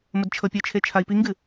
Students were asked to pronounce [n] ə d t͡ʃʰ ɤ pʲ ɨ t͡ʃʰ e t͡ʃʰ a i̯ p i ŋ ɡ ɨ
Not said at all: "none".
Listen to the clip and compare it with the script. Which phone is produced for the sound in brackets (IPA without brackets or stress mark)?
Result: m